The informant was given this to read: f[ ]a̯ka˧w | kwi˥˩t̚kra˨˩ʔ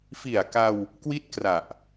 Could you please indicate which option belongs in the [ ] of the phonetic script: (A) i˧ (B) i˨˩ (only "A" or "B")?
B